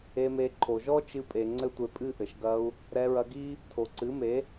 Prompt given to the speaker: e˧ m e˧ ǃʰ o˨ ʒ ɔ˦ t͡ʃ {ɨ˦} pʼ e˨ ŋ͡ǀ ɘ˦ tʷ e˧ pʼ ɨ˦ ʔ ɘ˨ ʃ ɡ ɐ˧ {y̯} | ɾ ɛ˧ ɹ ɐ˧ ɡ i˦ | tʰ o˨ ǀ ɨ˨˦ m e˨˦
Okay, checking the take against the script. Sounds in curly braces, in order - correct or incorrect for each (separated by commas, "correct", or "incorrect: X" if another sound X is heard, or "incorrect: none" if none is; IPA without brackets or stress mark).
incorrect: ɨ˧, incorrect: u̯